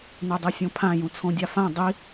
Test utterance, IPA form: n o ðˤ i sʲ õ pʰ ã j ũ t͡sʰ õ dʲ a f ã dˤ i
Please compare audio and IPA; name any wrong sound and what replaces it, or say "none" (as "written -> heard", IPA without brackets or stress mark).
ðˤ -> dˤ